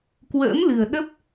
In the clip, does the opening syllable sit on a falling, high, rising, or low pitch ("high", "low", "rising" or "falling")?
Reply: rising